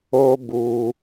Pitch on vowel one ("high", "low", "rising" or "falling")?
high